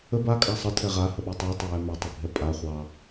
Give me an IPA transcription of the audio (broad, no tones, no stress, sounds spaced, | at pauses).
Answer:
ə b a kʼ a sˤ ə tʰ ɛ ʁ a h ə ɓ u tˤ ɑ tˤ ə j ɛ m ɛ tˤ ə bʱ ɛ pʼ a χʷ ɑ